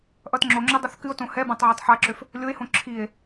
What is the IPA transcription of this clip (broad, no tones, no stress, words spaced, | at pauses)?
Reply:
ʔʌtŋ͡ǁoŋ͡ǁo dˤʌθkɨo̯tõ hɛbãtˤ ʕatˤħaǁøf | lʲoe̯hõ ǁʰie̯